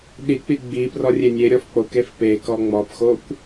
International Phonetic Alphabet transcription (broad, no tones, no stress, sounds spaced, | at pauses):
ɗ i k͡p i ɡ͡b i p r ɔ rʲ e nʲ e ɾʲ ɔ f k͡p o k e f p e k ɔ ŋ͡m ɔ p x o kʷ